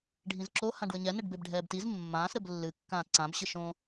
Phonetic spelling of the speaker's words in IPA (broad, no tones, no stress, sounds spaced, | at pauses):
ɖʱ ĩ z ǁ o h ã ɖ w ɘ ɲ ɛ n ɛ ɖ b e b ɖʱ ɛː b t i z mː ãː s ɾ ɘ b lː ɨ kː ãː t ǀ ã b ɕ ɨ ʃ õ